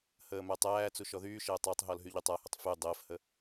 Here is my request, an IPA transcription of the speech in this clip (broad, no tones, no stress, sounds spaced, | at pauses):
h əː m æ tˤ æː t͡s u ʃ ɔ ð yː ʃ əː tˤ æ tˤ ɦ ɔ l ɦ y ʎ y tˤ a h ə tˤ f y dˤ əː f h ə